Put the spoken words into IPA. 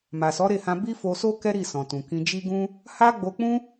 ma˨sɔ˨˦ɾe˦˨hã˧ bi˦fo˧so˦ kɛ˦ɾi˦˨sɔ̃˨tũ˨ kĩ˧d͡ʒi˦ɡũ˦ | ha˦ ɡ͡bo˧k͡pũ˦

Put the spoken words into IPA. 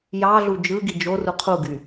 jɑɮu d͡ʒɯɡi d͡ʒoru qʰuɡy

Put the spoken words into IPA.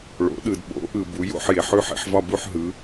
ɭo̰˨˦ɗɯ˨d ɓo̰˨˦ʔɯ˨ bu˨˦jo̰˥˧ħ je˨ ħʉ˥˧ħḭ˨˦ħvɒ˥˧ bu˥˧ħɦɯ˨˦

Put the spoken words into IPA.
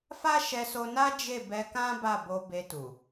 fa˦ʃɛ˧so˧ na˦d͡ʒe˦˨bɛ˧kã˦ ba˦˨bo˧be˧tu˨

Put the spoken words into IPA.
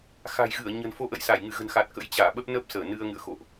xa̤˨˩jɣɨ˧˩ə̯ ɲə̤˨˩nfo˧ʔə̰˧˨jsa˧˩j ŋɨ˧˩ɣə̤˨˩nxa˨˩t̚ kə̰˧˥j t͡ɕaː˧˩ɓə˦˥p̚ nə˦˥p̚səː˧˩ nɨ˧ə̯ŋɨ̰˧˨ə̯xo̰˧˨ʔ

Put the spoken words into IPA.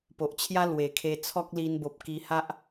po˨ʔt͡ɕʰja˦ lwe˨˩kʰe˧ t͡sʰɔ˦k̚li˧nbo˨p̚ ki˧ha˦ʔ

